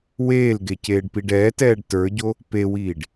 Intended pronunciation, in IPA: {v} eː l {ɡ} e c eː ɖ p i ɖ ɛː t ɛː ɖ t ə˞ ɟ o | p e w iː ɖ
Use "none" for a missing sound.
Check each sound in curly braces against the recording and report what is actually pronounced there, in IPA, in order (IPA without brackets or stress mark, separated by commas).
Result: w, ɡ